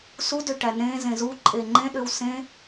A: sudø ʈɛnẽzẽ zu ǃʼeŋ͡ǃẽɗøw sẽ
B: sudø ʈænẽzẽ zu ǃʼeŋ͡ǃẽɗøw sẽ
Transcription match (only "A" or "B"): B